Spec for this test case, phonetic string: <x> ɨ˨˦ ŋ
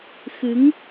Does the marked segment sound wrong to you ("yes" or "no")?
no